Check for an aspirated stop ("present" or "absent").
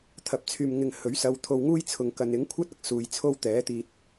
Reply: present